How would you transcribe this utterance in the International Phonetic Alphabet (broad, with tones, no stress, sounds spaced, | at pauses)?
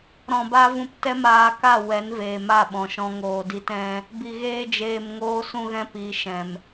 ɾ ɔ̃˨ b a˧ v ũ˧ p t ɛ˦ m aː˧ k a˦˨ w ɛ˨˦ n v eː˨ m a˦˨ ɓ ɔ̃˨ ʃ ɔ̃˦ ŋ oː˧ d i˦ t ɛ̃˧ | b i˨ ɣ eː˧ d͡ʒ eː˨ m ŋ oː˧ s ũ˧ ɣ ɛ̃˧ p i˨˦ ʃ ɛ̃˨ m